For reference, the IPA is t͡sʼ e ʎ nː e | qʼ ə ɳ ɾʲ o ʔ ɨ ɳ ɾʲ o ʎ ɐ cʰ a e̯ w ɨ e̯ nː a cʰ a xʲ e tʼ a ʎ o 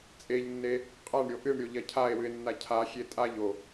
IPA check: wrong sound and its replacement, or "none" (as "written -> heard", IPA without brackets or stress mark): ə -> a